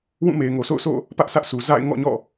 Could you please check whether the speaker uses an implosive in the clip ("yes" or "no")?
no